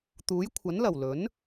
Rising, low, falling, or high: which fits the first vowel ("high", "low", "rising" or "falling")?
rising